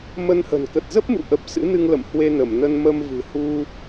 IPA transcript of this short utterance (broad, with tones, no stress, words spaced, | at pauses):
mə˧nhə̤˨˩n kə˨˩t̚zə˦˥p̚mṵ˧˨ʔə˨˩p̚ sɨ̰˧˥nɨ˧ŋlə̰˧˨m hwe˧nə˧˩mnə˧n mə˧mvɨ̤˨˩hu˧